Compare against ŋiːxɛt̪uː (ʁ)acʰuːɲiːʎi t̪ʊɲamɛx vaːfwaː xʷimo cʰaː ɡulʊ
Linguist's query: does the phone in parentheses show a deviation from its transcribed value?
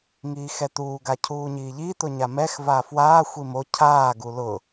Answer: yes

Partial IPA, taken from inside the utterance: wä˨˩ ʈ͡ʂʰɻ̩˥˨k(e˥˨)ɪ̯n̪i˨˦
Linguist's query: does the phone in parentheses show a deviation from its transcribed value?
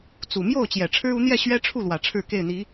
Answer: no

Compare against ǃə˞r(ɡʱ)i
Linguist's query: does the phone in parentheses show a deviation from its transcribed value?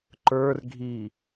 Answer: no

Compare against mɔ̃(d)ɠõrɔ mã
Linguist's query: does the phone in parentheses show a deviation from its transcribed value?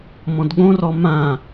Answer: no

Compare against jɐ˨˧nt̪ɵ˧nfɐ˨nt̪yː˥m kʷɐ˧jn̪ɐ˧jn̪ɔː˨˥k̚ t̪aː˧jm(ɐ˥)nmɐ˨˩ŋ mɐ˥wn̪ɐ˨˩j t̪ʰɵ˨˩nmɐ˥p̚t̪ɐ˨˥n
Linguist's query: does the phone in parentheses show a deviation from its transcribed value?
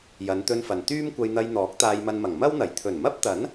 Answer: yes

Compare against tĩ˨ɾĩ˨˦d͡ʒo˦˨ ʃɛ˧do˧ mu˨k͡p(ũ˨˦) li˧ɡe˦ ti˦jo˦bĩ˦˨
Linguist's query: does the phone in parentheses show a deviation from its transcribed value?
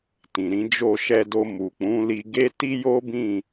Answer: no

